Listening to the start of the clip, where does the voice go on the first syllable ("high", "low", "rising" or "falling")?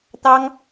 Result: high